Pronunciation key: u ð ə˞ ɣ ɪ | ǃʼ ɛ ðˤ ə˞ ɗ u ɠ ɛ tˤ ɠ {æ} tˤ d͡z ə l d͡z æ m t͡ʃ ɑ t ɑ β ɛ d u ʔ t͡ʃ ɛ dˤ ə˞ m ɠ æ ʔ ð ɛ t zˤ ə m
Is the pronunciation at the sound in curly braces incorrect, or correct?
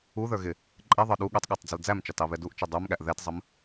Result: correct